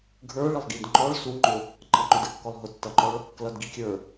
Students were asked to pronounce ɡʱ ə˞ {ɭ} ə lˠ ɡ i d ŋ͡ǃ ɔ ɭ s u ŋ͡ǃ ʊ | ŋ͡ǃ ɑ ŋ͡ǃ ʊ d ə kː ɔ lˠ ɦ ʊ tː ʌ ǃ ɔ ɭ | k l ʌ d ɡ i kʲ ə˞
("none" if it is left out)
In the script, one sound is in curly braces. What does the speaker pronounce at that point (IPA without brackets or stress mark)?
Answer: ɭ